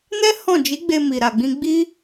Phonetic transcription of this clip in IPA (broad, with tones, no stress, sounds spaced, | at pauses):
n ɛ˦ h ɔ̃˦˨ d͡ʒ i˨˦ ɡ͡b e˧ m i˨ ɾ a˨ ɡ͡b ĩ˧ ɡ͡b i˦